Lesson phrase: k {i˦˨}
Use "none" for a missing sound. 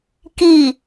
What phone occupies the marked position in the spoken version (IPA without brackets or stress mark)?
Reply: i˦˨